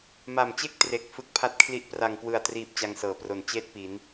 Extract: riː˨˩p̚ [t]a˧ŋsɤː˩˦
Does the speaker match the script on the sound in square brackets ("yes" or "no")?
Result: no